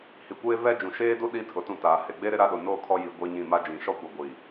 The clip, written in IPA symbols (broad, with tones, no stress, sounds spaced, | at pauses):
h i˨ kʷ eː˦ v ɛ˦ d͡ʒ ũ˨ ʃ eː˦ d u˦ ɗ i˦ tʰ ʊ˨ t ũ˦˨ t aː˨ h e˨ ɡ͡b eː˦ ɾ ɪ˦ ɾ a˦ ɗ ʊ˨ n oː˦ kʰ ɔ˦ j i˨ ɡʷ ɛ˦ ɲ ĩ˦˨ m a˦ d͡ʒ ĩ˨ ʃ ɔ˦ kʷ a˨ ɡʷ i˨